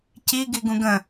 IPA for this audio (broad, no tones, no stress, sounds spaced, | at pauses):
c i ɡ i ɡ ũ ɡ ə̃